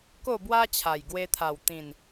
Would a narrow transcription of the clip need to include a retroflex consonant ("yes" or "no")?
no